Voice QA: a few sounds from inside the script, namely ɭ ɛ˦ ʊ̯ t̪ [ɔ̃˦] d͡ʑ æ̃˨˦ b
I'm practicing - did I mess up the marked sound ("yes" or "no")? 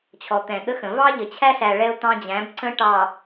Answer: yes